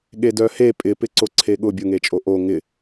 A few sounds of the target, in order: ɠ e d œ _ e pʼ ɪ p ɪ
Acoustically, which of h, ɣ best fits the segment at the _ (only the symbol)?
h